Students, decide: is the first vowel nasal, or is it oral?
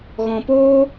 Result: nasal